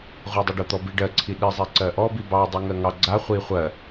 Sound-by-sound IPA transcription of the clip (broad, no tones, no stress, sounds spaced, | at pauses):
ʁʷ ɜ dˤ i ɖ o t̪ ɔ b i ɖ ɜ ǀʰ i ɗ i zˤ i ǀ ɜ ʔ ɔ b i b ɑ dˤ i ŋ ɜ ŋ ɑ ɡ͡ǀ a χʷ i χʷ ɜ